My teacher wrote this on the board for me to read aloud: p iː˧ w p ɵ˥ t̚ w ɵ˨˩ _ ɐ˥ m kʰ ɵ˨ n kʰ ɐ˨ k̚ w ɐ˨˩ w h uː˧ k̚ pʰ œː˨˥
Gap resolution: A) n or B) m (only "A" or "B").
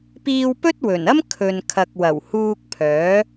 A